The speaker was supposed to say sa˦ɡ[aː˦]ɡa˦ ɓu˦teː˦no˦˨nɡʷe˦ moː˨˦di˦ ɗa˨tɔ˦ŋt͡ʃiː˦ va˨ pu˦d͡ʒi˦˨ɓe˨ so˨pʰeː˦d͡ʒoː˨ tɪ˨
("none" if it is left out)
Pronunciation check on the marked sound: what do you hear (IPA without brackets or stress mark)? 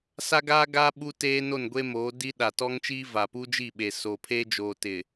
aː˦